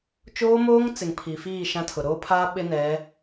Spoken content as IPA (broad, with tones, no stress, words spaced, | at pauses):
t͡ʃoː˦moː˦ŋ t͡sɪ˨ŋpʰi˨fiː˦˨ ʃã˦tʰʊ˨ ɾoː˦pʰaː˦ ɓɪ˦nɛ˨˦